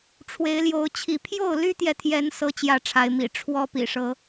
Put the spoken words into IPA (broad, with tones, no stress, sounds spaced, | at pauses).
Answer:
ʈ͡ʂʰ w e˨˦ ɪ̯ l j o˨˦ ʊ̯ t͡ɕʰ i˨˦ pʰ j o˥˨ ʊ̯ l y˦ t̪ j ɛ˨ t̪ʰ j ɛ˨˦ n s ɤ˦ t͡ɕ j ä˥˨ ʈ͡ʂʰ a˨˦ ɪ̯ m ḭ˨˩ ʈ͡ʂʰ w ɔ˦ p ḭ˨˩ ʂ ɤ˨˦